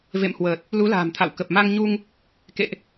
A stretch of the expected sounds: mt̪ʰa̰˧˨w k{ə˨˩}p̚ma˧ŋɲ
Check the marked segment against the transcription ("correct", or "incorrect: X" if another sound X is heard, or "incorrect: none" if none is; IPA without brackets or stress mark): correct